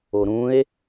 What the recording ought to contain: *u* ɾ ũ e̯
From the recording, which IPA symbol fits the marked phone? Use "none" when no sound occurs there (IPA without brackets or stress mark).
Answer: o